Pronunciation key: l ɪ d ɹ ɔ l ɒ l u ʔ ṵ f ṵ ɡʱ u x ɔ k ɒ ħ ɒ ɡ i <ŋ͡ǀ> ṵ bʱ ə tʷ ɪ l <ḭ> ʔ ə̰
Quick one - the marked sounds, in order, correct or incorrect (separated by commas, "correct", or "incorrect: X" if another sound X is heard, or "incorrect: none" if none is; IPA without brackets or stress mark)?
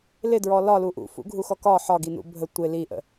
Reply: incorrect: n, incorrect: i